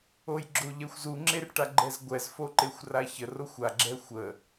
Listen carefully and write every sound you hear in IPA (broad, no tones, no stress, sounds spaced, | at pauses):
o j ɡ͡ǁ o ʎ ɛ xʷ z u ŋ͡ǁ e r ʈ a ɡ͡ǃ ɛ z ɡʷ ɛ z f o ǃ e xʷ r a ç ə r o xʷ a ɡ͡ǁ ɛ xʷ ə